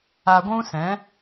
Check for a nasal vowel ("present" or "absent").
present